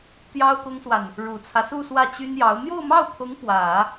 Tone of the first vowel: high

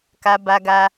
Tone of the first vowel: high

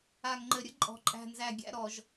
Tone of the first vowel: low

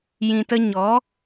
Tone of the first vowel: low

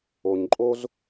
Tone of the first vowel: low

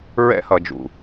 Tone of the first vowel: high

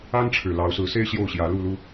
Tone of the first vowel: high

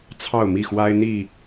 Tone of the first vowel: falling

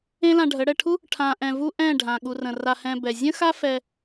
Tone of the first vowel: high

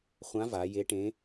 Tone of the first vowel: rising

